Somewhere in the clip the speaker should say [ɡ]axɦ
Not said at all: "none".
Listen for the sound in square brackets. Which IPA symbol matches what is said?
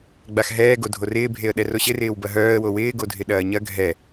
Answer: ɡ͡b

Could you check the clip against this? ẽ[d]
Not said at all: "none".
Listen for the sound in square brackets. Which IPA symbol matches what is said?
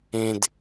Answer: d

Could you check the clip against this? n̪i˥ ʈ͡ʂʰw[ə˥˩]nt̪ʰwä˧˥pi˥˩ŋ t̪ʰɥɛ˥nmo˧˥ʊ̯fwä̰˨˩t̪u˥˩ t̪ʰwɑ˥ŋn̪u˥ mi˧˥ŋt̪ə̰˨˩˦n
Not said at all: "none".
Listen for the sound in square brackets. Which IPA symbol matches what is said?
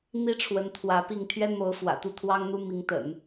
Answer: ə˧˥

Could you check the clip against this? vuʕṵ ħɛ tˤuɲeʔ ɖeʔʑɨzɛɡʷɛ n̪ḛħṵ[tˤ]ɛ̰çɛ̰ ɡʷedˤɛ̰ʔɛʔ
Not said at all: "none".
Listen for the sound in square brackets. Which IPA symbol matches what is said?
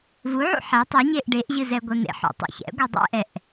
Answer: tˤ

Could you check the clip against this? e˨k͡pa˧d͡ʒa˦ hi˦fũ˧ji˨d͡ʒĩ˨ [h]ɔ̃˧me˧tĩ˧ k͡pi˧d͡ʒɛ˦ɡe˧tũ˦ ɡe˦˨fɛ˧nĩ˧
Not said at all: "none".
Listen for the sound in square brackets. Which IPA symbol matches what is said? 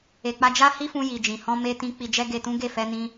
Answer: h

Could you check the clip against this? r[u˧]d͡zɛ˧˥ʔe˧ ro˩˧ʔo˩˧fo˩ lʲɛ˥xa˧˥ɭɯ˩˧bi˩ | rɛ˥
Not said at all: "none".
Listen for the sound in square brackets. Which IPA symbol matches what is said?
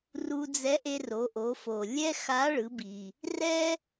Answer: u˧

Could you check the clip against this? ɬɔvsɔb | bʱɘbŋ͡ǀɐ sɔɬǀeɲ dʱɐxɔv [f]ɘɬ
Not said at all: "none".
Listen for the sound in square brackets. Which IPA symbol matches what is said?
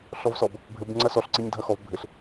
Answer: bʱ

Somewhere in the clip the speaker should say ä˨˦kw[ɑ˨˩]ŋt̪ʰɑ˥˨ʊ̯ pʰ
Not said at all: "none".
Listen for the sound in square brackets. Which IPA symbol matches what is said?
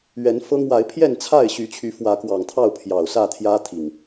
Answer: ɑ˨˩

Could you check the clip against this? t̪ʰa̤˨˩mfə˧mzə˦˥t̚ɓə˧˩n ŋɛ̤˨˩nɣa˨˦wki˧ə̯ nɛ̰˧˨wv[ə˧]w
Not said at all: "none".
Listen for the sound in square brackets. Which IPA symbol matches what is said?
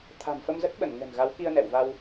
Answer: a˧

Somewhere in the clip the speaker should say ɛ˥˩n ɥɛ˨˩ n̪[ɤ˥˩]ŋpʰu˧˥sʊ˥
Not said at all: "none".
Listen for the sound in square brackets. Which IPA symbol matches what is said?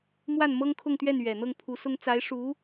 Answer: ɤ˥˩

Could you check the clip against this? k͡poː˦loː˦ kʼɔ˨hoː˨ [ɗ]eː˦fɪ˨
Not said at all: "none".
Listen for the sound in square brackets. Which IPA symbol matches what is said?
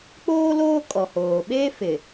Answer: ɓ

